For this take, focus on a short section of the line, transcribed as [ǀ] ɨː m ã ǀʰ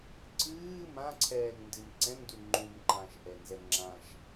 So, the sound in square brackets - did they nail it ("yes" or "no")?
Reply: yes